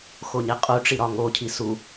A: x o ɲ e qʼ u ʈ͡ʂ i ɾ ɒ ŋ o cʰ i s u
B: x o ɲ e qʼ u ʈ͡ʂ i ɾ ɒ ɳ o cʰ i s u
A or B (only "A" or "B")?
A